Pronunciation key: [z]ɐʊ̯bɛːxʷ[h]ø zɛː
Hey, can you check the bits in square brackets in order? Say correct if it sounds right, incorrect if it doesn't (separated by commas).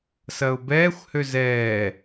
incorrect, correct